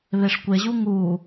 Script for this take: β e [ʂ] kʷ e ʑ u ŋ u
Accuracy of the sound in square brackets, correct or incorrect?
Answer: correct